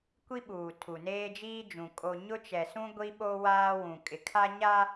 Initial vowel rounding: unrounded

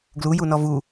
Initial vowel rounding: rounded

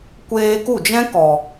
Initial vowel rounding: unrounded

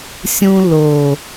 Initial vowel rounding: rounded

